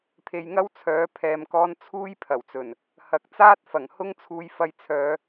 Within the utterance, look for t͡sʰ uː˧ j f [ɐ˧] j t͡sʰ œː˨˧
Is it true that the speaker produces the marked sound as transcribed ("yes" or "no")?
yes